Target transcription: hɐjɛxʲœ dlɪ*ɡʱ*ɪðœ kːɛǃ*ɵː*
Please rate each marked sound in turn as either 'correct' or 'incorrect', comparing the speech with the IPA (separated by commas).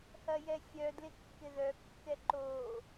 incorrect, incorrect